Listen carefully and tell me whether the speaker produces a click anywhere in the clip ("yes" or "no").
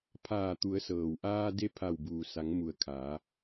no